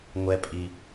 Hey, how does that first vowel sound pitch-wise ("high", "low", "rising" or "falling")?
high